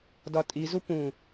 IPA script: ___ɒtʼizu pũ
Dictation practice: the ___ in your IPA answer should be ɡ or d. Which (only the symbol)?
d